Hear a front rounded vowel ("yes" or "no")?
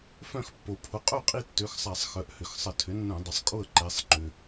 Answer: yes